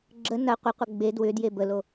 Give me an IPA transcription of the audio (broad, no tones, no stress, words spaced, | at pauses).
ɡ͡ǁə nɐ qʷəqʷɐ ɡ͡be dwʏ djebəlo